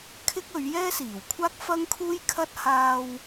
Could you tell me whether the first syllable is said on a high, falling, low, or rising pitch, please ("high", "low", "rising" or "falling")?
high